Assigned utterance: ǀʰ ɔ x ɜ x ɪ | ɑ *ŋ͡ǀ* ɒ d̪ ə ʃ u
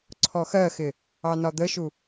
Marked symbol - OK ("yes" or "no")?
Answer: no